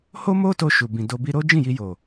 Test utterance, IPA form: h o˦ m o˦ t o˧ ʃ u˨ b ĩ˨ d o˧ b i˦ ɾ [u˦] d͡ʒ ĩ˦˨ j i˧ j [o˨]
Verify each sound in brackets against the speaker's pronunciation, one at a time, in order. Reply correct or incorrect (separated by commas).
incorrect, correct